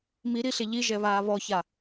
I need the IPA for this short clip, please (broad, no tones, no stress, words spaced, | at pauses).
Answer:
miɾiɬe ʎiʒɛβaː βɔça